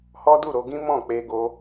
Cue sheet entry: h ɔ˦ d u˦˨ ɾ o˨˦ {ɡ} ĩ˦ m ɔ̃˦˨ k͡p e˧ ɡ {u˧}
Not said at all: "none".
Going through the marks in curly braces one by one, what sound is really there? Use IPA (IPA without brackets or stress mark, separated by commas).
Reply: ɡ, o˧